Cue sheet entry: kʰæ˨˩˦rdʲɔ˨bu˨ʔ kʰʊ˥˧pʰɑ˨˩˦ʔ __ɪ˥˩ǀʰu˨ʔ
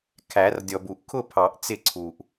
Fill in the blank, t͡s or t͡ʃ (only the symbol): t͡s